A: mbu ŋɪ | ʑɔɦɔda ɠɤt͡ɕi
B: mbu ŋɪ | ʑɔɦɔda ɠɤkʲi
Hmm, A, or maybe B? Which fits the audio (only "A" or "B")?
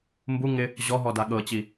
A